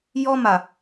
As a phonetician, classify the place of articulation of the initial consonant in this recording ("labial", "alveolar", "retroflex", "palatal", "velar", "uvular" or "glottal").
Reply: palatal